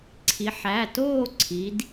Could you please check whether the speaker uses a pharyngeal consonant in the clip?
yes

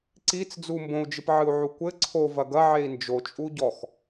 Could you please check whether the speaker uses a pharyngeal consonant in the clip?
yes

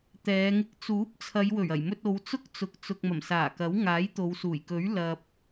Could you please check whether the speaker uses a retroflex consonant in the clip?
no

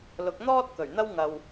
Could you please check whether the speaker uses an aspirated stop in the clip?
no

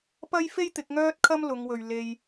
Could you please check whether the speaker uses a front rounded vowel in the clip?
yes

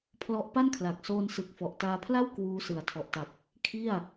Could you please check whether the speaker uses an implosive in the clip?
no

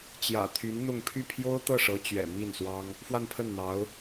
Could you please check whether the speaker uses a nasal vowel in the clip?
no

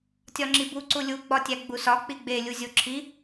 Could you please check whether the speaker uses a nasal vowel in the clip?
no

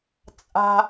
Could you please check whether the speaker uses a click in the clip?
no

